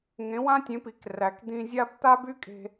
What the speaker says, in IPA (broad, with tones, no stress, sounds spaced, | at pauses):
ŋ ẽ˩˥ w ã˥ tʲ ẽ˩˥ p i˩ k r æ˩ k d̪ ĩ˧ zʲ a˥ b t̪ a˥ b y˥ kʼ e̤˧